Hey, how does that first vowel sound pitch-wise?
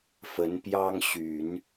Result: rising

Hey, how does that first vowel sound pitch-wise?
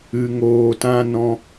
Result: low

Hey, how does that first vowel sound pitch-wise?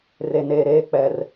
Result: low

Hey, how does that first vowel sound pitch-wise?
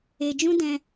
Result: low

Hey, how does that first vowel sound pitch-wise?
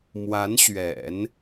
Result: rising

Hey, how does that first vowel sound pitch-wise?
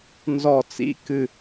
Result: falling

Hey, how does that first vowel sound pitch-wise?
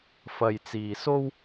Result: low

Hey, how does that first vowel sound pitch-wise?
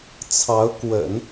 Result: rising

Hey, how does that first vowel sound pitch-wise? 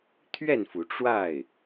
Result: falling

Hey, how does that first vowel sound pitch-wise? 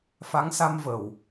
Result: rising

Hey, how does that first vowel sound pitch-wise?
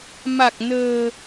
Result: low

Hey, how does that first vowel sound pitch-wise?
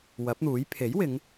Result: rising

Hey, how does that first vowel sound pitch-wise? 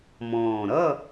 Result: low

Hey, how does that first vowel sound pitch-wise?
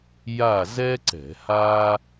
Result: falling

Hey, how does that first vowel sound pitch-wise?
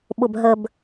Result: low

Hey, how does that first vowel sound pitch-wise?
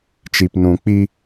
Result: low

